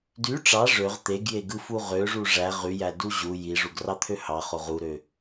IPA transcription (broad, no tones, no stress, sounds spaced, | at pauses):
d y ʈ͡ʂ ɑ ʐ ø ʁ t̪ e ɡ j e ɡ ɯ f u ʁ ø ʐ u ʐ æ ʁ y j æ d u ʑ u j i ʐ u ɡ r ɑ t̪ʰ ø h ɑ χ o ʁ u ɾ ø